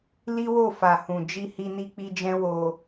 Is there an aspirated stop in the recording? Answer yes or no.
no